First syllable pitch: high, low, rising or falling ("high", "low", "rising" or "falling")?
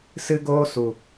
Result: high